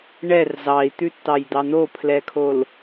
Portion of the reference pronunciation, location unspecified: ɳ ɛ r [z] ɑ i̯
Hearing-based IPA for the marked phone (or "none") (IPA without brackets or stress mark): z